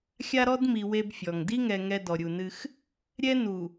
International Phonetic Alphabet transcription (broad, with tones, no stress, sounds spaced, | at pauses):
xʲ a˦ ɾ ɔ˦ d m i˨ w e˦ b fʲ ɔ˨ ŋ d i˦ ŋ ɛ˨ ŋ ɛ˦ d ɔ˨ ɾʲ u˨ n ɨ˦ x | ɾʲ ɛ˦ n u˨